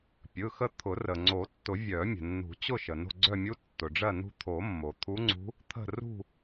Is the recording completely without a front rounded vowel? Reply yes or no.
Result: no